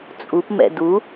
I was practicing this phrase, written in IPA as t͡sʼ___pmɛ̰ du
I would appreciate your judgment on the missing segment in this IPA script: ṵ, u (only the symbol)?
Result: u